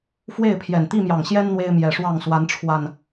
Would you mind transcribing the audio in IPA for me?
fwe˥˨ɪ̯pʰjɛ˨˩n t̪i˥˨mjɑ˨˩ŋɕjɛ˦n n̪we˦ɪ̯mjɛ˨˩ʂwɑ˥˨ŋ swa˨˦nʈ͡ʂʰwa˨˩n

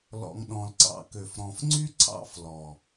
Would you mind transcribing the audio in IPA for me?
lɔ̰˨ŋɗɔ̃˨lǀɑ̰˧kø˨f ɾɔ̃˨fŋ͡ǀy˦ ǀʰɑ̰˦flɔ˨

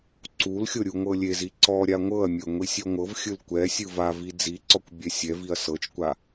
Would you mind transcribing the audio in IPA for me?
ǀulxʲo ɾʲuŋʷɤlʲezi ǀɔɾʲa ŋʷɤɐ̯mʲɤ ŋʷisʲɔŋʷɤvxʲɯl kʷɛ sʲɯvavi d͡ziǀɔkʷ bʲɛsʲɛviɐ̯ sɤt͡ʃkʷa

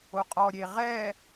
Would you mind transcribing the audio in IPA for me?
oqʼɔ ɾʲeʁɛ

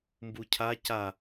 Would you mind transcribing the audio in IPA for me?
mbucʰa ca

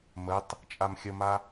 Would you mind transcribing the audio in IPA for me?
mətˤ | t͡ʃʼamxʲəma

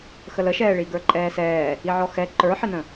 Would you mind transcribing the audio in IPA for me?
xələʃɛːɭi ɡə˞ǃʼɛːsɛː | iʕɔxɛ ǃə˞ħɪnə̃

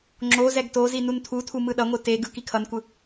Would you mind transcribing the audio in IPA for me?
ŋ͡ǁo zɛɡtozi nuntʰutʰu mɯɗʌŋʷɯ te ɡɯkikʰʌnkʷɯ

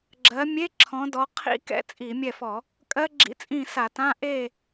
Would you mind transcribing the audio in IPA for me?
ɡ͡ǁɜ˨˦mʲe˧˥˧ ǁʰɔ̃˨˦dɔ˨˦ qʰḭ˦˥kɛ̰˦˥ t͡sʼi˧˩˧mʲɛ˦˨fɔ˧˩˧ | kʼɜ˦˥ɡ͡ǁḭ˧˥˧t͡sʼĩ˦˨ sa˧˩˧tã˧˥˧ ʔe˦˨

